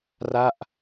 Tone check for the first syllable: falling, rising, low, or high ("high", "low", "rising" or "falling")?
falling